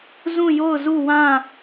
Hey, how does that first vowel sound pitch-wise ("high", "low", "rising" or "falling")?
falling